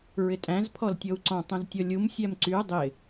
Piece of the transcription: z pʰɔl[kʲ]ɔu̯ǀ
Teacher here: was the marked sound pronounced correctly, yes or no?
no